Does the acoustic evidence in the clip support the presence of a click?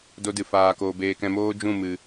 no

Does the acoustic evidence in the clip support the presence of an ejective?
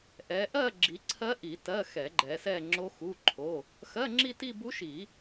no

